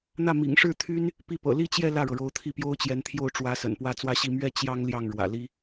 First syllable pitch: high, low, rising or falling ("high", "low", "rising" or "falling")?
falling